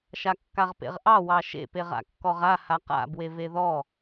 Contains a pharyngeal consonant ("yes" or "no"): no